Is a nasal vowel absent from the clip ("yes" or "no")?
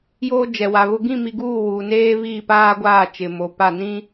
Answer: no